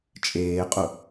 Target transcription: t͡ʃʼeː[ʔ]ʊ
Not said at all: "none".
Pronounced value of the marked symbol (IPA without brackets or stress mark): qʼ